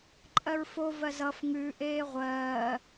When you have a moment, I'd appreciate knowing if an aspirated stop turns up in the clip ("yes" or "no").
no